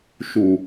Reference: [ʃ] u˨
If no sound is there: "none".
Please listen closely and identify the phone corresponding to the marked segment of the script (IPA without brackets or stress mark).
ʃ